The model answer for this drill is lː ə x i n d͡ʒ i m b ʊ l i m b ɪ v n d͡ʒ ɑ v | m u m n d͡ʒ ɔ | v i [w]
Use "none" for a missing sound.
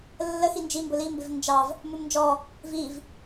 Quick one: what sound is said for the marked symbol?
v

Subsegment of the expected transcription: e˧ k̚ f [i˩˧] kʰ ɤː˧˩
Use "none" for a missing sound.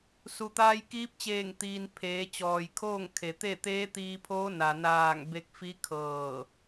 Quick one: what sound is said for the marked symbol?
i˧˥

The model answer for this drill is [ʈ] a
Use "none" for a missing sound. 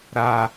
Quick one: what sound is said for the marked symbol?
ɾ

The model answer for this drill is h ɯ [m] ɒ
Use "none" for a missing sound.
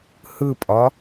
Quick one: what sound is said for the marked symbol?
pʼ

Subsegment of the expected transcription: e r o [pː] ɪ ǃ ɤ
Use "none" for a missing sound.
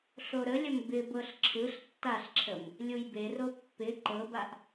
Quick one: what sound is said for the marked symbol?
pː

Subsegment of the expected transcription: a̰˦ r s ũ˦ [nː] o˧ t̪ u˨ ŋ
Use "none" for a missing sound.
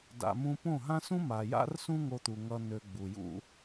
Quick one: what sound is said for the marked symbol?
ŋ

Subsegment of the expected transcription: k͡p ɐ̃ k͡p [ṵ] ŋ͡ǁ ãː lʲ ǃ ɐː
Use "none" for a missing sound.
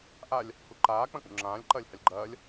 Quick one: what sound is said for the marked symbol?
ṵ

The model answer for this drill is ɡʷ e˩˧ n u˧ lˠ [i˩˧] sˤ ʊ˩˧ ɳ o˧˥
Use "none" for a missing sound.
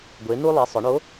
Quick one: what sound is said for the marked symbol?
i˩˧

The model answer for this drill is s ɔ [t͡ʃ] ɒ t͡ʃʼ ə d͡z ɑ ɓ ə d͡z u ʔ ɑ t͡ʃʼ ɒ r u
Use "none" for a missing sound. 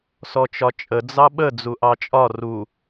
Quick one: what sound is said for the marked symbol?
t͡ʃ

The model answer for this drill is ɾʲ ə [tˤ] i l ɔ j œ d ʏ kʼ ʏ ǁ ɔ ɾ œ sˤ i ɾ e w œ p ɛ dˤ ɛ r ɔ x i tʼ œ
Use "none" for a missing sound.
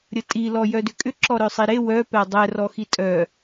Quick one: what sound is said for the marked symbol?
tʼ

